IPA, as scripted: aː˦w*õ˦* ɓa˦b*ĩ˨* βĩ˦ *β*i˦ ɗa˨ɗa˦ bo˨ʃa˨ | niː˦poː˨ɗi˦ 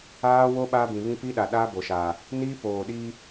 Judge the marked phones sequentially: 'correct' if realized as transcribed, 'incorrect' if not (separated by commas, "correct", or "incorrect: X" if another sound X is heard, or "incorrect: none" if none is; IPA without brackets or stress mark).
incorrect: o˦, correct, incorrect: p